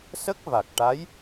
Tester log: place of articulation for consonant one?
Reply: alveolar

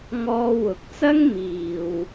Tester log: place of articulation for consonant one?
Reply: velar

